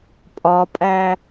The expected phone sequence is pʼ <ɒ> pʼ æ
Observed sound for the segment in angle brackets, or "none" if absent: ɒ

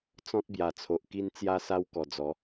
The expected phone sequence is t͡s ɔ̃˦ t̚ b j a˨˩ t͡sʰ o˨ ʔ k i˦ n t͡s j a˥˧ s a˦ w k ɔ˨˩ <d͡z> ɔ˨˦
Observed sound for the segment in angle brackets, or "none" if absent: d͡z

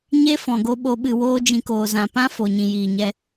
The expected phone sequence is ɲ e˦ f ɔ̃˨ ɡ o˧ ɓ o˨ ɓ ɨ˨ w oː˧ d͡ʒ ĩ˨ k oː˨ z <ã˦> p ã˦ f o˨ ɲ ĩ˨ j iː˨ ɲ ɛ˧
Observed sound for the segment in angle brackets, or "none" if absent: ã˨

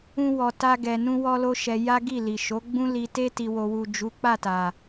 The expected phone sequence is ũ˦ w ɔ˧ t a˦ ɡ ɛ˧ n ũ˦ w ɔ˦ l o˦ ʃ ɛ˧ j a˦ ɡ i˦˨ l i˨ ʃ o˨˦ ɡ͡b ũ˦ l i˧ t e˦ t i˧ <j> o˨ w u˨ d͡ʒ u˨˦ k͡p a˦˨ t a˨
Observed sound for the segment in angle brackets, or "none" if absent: w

